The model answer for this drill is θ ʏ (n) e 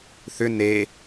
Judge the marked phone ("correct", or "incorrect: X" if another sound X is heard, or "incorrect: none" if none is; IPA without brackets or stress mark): correct